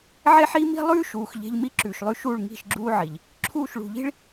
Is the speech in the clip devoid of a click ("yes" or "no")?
no